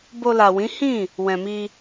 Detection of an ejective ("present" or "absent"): absent